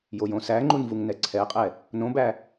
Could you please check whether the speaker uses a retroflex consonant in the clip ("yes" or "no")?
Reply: no